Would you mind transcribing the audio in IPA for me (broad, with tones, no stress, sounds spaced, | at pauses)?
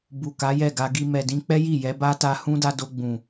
b u˨ k a˨˦ j ɛ˦˨ ɡ a˧ ɡ i˧ m ɛ˨ d ĩ˧ k͡p ɛ˦ j i˦˨ j ɛ˨˦ b a˦ t a˧ h ũ˦ d a˧ d o˧ ɡ͡b ũ˨